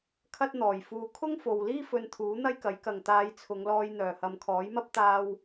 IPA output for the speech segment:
kʰɐ˥t̚ n̪ɔː˨˩j fuː˨˧ kʰʊ˥ŋfo˨wliː˥ fɵ˧nt̪ʰuː˨˥ n̪ɐ˥jkɐ˨˥jkɐ˨ŋ t̪aː˨˧jt͡sʰʊ˨˧ŋlɔː˧j n̪œː˨˩hɐ˨mkʰɔː˨˥jmɐ˥p̚ t̪aː˧w

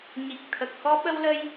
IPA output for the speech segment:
ɲi˨˩k̚t̪ʰə˨˩k̚ xɔ˧ɓə˧wlə˧j

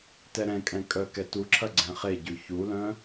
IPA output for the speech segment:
tɛɾɛ̃kʼɛ̃ kʼœkɛ tuǁʰɐ ɡ͡ǀɛ̃χeɟʉ çulœ̃

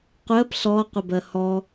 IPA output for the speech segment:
qʷɜp ɬɔ qʷɛbɜhɔ

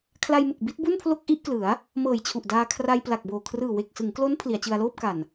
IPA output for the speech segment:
kʰla˧jmɯ˨˩k̚ bi˦˥t̚bu˥˩npʰlo˥˩k̚ ʔi˥˩ʔklɯ˩˦a̯ | mɤː˨˩jt͡ɕʰu˨˩ʔdaː˧ kʰra˧jpla˨˩k̚boː˨˩ kʰrɯː˨˩we˨˩k̚sɯ˩˦ŋklo˦˥n pʰli˩˦a̯t͡ɕɯ˧a̯loː˥˩p̚ka˨˩n

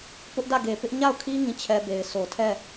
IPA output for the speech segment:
pʊ˦ʔdä˦˨ɡe˨pɪ˦ʔ ɲa˦˨ʊ̯kʰi˦ ŋĩ˦˨t͡ɕʰɛ˦be˨ɪ̯ so˨tʰɛ˦˨

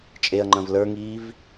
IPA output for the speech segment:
t͡ʃʼeɐ̯ŋ͡ǃɐ̃v lə˞ŋiːv

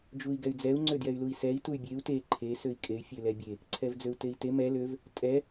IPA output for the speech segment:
d͡ʒui̯ɡɛy̯d͡zɛu̯ ŋ͡ǀødjɛy̯lui̯sɛi̯ tuy̯bʲeu̯ te ǃʰe søi̯kʼey̯ fʲølɛbʲe | ǀʰɛvd͡zøu̯tei̯te mɛ løv | tʼɛ

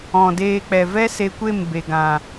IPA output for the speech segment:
ɔ̃˨ deː˧k͡pɛ˨vɛ˦ se˧ kʷe˦˨mbe˨ɡã˨

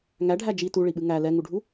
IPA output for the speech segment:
ŋæɖʱæ d͡ʒi tuɭiɓɨ ŋæ lɛŋuɖʱu

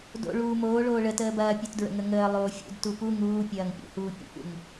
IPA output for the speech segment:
do̰ ɭuːmoː ɭoːɭə təːbɐːpʲut dɹə̰ŋəŋəː lˠoːfʲṵd tupu ŋuːpʲɐːŋpʲṵhuː pʲə̰pṵŋ

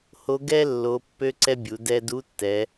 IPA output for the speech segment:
ho˧˥ ɡɛ˥lːo˩˧ pːø˥ǀɛ˥bʲu˩˧ dɛ˧du˧˥tːɛ˩˧

